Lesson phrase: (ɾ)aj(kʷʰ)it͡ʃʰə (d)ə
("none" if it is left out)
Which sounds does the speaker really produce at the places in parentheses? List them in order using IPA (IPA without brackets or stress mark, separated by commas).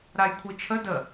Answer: ɾ, kʷʰ, d